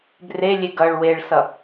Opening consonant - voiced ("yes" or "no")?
yes